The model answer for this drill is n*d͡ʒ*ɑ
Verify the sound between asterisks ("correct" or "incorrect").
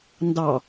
incorrect